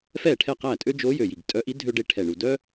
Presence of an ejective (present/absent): present